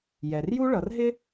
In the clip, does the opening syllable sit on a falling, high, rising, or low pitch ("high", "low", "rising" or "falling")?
low